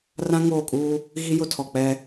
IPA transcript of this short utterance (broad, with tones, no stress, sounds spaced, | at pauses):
r ã˦ ŋ oː˦˨ kʼ uː˦ | ɣ i˦ j ʊ˦ tʰ ɔ˨ k͡p ɛ˦